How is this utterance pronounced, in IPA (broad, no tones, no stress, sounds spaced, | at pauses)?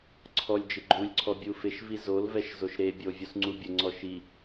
ǀʰ ɔ lʲ d͡ʒ ɪ ɡ͡ǃ u lʲ ǀʰ ɔ bʲ u f ɪ ʃ v i z o l v ɛ ʃ z o ʃ ɾ e bʲ o vʲ u s ŋ͡ǀ u bʲ ʊ ŋ͡ǀ ɔ ʃ i